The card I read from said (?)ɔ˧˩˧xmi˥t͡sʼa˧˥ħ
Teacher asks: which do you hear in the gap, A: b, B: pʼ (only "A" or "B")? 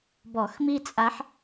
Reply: A